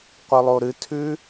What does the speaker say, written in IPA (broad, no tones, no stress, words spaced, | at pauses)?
qʷɨlˠoɾɨtʰʉ